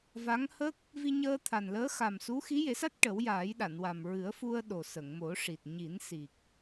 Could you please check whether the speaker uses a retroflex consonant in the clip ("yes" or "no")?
yes